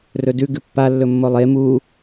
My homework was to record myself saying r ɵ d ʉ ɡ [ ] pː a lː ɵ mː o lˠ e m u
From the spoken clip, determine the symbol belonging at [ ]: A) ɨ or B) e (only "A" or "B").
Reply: A